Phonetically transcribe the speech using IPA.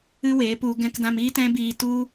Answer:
ɨ˦ w eː˨˦ p u˧ ɡ ɛ̃˧ k d ã˧ m iː˦ t ɛ̃˦ b iː˧ t u˦

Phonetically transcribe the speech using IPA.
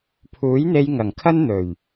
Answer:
pʰ uː˨˥ j n̪ e˧ j ŋ ɐ˨˩ ŋ kʰ ɐ˥ n n̪ ɵ˨˩ ɥ

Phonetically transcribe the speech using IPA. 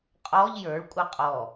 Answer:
qʼ ɔ ʎ j ə˞ ɭ kʷʼ ɘ qʼ ɔ

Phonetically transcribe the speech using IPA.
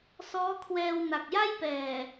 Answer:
s ɔː˦˥ kʰ w ɛː˧ w n a˨˩ k̚ j a˥˩ j p ɛː˨˩

